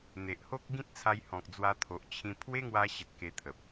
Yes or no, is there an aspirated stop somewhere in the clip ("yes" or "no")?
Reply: yes